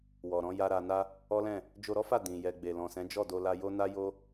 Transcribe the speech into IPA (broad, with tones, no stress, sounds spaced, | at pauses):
w ɔ˨ ɾ ɔ̃˨˦ j a˧ ɾ a˧ n a˦ | ɔ˦ l ɛ̃˦˨ | d͡ʒ o˧ ɾ ɔ˦ f a˦˨ d ĩ˨ j ɛ˨ ɡ͡b e˨ l ɔ̃˨ s ɛ̃˨˦ d͡ʒ ɔ˦˨ d o˧ l a˧ j o˦ n a˦ j o˦